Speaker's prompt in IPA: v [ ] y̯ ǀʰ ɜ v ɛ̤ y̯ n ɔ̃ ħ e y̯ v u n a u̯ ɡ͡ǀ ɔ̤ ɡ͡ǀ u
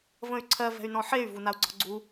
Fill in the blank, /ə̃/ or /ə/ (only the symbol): ə̃